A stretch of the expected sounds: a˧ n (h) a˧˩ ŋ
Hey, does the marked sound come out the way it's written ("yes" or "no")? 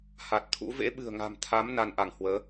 no